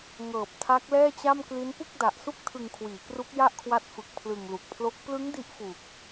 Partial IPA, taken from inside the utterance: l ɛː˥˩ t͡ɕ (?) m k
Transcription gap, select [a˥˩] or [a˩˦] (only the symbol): a˥˩